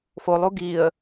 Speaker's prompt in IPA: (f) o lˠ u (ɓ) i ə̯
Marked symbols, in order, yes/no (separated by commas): yes, no